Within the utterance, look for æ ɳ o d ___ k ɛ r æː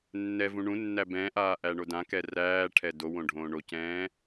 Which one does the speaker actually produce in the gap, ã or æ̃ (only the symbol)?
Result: ã